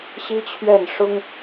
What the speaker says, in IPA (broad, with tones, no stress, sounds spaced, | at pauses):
ɕ i˥ t͡ɕʰ ɥ ɛ˥˩ n ʂ ʊ˥ ŋ